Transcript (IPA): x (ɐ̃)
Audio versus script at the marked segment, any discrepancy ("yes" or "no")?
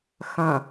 no